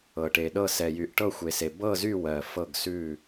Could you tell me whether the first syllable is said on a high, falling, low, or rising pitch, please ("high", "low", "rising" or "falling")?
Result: low